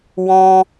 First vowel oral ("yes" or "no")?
no